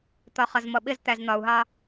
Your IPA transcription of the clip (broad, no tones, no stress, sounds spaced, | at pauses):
t̪ ɒ χ ʌ z m ʌ ɓ ɪ z t̪ æ z n̪ ɒ u̯ ɦ ɑ